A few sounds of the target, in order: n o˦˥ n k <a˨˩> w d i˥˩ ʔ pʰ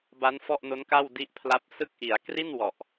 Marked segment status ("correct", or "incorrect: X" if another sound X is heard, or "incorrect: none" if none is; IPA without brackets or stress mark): incorrect: a˥˩